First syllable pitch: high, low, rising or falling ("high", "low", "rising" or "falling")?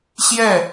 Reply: falling